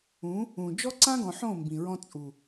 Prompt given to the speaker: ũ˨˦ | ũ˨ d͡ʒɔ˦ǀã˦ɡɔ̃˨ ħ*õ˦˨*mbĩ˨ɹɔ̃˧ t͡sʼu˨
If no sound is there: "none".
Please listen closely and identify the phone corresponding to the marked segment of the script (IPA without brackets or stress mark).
õ˦˨